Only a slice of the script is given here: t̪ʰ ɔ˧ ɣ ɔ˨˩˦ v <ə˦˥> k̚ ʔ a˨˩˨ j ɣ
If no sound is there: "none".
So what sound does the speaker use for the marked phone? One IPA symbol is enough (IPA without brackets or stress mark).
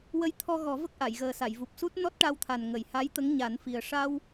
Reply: ə˦˥